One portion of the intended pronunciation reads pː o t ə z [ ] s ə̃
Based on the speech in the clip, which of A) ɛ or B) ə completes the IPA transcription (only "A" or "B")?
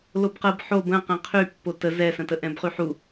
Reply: A